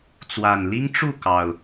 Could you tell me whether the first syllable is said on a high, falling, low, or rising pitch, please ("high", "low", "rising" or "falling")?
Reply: low